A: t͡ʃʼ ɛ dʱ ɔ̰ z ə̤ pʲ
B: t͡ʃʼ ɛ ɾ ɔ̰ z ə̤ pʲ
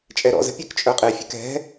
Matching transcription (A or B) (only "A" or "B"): B